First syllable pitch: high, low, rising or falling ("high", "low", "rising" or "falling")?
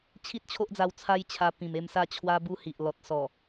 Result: high